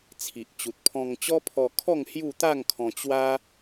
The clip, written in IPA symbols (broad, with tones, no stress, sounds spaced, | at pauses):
t͡sʰ i˨ ʔ t͡ɕ u˨ t̚ pʰ ɔ̃˧ ŋ t͡ɕ ɔ˦ pʰ ɔ˧ kʰ ɔ˥˧ ŋ h j u˥˧ t̪ a˥˧ ŋ kʰ ɔ̃˧ t͡ɕ w a˦